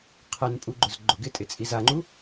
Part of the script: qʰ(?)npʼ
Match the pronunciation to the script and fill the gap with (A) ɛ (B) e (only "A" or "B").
A